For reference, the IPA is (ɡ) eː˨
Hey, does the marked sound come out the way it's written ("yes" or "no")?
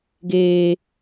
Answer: yes